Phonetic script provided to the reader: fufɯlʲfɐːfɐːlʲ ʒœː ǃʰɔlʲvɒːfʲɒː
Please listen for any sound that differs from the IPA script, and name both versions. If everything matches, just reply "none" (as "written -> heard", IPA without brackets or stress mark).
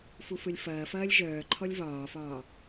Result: fʲ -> f